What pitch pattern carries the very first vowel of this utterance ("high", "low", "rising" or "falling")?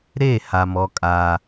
falling